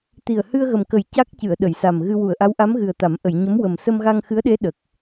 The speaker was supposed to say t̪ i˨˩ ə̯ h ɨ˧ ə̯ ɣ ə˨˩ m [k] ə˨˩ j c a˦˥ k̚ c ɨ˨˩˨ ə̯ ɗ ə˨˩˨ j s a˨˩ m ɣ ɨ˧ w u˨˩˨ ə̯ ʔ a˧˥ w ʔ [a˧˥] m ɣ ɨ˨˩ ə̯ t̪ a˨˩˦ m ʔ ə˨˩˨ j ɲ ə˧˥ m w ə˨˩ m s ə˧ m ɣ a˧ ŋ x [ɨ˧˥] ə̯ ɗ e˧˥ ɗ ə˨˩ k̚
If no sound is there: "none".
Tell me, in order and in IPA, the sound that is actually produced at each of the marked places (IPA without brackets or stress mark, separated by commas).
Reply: k, a˧˥, ɨ˧˥